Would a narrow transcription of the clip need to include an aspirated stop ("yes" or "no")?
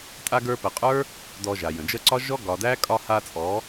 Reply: no